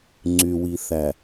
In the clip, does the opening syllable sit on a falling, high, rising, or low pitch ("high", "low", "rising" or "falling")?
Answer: low